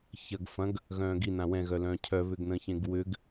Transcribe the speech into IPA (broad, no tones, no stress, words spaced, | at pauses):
çɐɡ fɐ̃ɡ | ɣœ̃ːɡinã wɛ̃ɣœlœ̃ː cʰœβʏɡnə̃çẽɡ wʏɡ